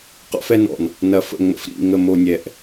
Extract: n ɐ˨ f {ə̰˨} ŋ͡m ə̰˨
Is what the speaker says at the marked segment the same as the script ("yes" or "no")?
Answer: yes